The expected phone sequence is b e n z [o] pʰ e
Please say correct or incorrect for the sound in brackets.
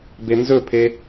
incorrect